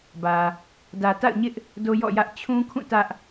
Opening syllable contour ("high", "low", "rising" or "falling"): low